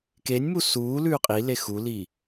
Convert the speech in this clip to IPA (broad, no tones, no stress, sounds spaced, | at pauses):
k e nʲ m u s uː l ʉː qʼ i l e x u l i